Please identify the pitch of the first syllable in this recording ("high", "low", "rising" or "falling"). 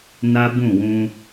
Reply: high